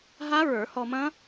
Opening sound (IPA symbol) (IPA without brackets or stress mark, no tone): ɦ